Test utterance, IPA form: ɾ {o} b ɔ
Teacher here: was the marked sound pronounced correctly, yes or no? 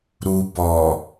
no